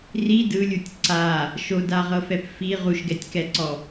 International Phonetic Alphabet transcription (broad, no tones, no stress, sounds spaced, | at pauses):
r i d ɯ lʲ u tʲ ǀ a | ʃ o d a ʁ ɤ f ɛ p f i ʁ u ʃ ɡ ɛ tʲ k ɛ ǀ ɔ